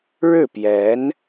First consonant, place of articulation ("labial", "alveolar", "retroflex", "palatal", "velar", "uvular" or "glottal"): retroflex